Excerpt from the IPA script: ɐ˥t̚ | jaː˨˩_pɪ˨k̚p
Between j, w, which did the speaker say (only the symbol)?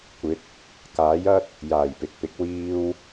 j